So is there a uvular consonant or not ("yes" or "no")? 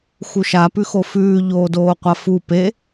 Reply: yes